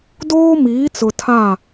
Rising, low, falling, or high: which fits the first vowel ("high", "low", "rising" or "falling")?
high